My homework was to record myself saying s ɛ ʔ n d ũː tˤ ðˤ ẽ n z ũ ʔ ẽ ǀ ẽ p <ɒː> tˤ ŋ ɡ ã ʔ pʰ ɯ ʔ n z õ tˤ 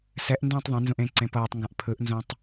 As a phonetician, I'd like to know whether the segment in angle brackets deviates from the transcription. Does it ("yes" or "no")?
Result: yes